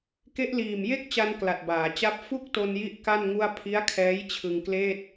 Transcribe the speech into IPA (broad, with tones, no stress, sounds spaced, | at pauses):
k e˦˥ ʔ l iː˨˩ m j e˥˩ k̚ t͡ɕ a˧ n k l a˨˩ t̚ b aː˩˦ t͡ɕ a˥˩ p̚ f u˥˩ k̚ t o˧ n j i˥˩ ʔ k a˥˩ n ŋ u˥˩ a̯ pʰ i˦˥ a̯ kʰ ɛː˦˥ j t͡ɕʰ ɯ˧ ŋ k l eː˥˩ t̚